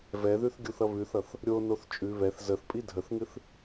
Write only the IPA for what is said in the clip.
vɛðʉθɡʲuθʌ βʉθʌθ | ɾʲonoθ t͡ʃʼʉ βɛθ zəθpʼi dʱəθŋɨθ

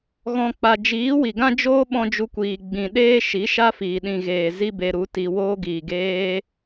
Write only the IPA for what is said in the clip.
ɣɔ̃˨k͡pa˨ d͡ʒiː˨˦wi˨ɡã˦d͡ʒoː˦ ɓɔ̃˧d͡ʒu˧kʷiː˨ ɡ͡bĩ˨ɗeː˦ ʃi˨˦ʃa˦fiː˨ ɗĩ˨ɣeː˨ zi˦be˧ɾu˨˦ti˧ woː˧ɡiː˨ɡeː˧

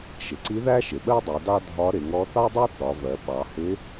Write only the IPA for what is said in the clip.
ʃɪ˩ǀi˧˥ ðæ˥ʃɪ˩ɓɜ˥dˤu˩˧ dɑ˥ dʱɒ˧˥ɾɪ˩˧ŋɔ˧˥ θɑ˥dˤɜ˥ θɒ˩˧vɜ˩˧ ɓɑ˩˧hɪ˧˥

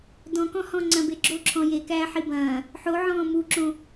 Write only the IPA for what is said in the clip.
dɔ̃kɔ̃hɔ̃ ŋ͡ǀɐ̃beɡ͡ǁo ǁʰɔ̃jekæː ħibɐ̃ː | ħo ʕɔ̃ːmuǁõ

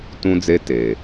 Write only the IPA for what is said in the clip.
tũ˦d͡ze˦ te˨

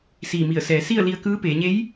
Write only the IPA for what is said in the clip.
siː˧˩mi˧˩ə̯ sɛː˩˧si˥˨ə̯ li˧ə̯kɯː˧˥peː˩˧ ɲe˧˥j

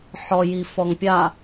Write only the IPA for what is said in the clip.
ħɔjifɔŋpʲa

